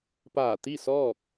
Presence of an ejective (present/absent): absent